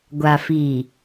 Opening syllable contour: low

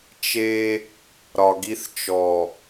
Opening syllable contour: high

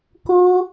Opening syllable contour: high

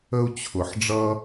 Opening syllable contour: high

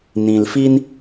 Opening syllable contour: low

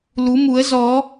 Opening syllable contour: rising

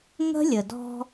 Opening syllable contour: high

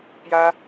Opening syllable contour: high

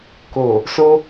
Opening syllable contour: low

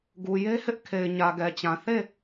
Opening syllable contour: low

